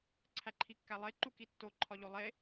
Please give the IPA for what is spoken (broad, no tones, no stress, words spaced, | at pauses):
ǀʰæǃʰikːælˠe ǃukitːo ǃʰɒʎolˠe